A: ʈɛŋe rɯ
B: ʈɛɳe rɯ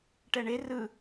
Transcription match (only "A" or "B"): B